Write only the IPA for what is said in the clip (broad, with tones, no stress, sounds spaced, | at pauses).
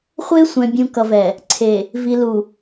χʷ e˦ sʷ ɛ̃˨ bʲ ũ˨ k ʌ˨ v ɛ˨ | ǀʰ e˨ | v i˨ l u˨